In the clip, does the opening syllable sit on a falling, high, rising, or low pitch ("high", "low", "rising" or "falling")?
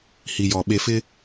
low